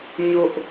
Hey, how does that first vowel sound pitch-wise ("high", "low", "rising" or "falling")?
high